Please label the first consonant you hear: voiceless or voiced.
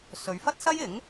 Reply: voiceless